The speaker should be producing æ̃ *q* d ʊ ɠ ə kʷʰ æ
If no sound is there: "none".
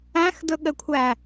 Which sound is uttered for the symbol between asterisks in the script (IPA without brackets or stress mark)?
x